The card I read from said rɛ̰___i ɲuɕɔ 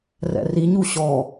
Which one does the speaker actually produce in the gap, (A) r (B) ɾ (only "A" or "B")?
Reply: A